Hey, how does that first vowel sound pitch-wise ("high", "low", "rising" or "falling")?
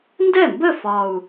falling